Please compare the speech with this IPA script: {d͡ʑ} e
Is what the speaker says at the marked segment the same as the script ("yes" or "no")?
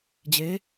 yes